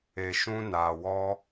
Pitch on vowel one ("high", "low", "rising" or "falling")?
low